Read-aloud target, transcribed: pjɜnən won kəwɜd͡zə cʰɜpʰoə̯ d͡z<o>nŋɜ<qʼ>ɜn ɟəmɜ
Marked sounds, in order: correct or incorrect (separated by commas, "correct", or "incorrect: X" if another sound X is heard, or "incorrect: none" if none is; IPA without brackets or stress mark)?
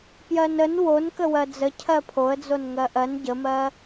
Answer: correct, incorrect: ʔ